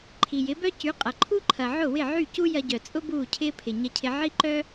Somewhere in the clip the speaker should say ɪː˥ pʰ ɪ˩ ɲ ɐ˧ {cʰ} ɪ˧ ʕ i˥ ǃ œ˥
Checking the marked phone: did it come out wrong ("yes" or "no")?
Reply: no